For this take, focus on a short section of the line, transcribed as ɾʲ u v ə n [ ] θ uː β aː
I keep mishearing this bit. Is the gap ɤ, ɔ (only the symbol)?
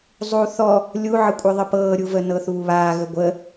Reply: ɤ